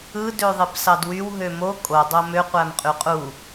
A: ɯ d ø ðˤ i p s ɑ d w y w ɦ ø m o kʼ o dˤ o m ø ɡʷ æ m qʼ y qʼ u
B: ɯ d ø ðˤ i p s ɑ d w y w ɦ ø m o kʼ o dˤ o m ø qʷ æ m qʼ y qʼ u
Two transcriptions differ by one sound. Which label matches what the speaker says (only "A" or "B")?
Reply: B